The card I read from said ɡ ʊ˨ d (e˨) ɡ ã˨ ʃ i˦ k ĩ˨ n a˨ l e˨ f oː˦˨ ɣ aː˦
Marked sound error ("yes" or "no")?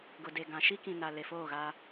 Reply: no